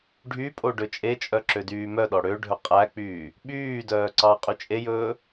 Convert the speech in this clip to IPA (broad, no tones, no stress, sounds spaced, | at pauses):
ɖʱ y pʼ o ɖ ø t͡ʃʼ e t͡ʃʼ œ ǁ ø d yː m œ ɗ ɔ ɽ ø ɖʱ ɵ qʼ æ k͡p yː | ɓ yː d œː ǀ ɑ qʼ y t͡ʃʼ e j ɵː